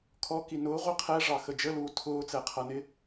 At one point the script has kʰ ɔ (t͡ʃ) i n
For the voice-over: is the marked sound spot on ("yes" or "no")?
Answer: no